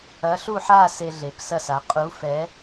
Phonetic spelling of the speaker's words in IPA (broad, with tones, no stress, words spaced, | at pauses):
ɐ˨˥ ɬu˦˨ħa˦˨ se˦ɮe˨˩p sɐ˦˨sa˩˧ qʼu˨˥fɛ˨˥